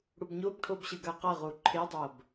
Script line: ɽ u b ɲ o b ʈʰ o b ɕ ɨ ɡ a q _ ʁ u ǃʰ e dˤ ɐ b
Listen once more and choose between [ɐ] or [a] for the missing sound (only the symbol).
ɐ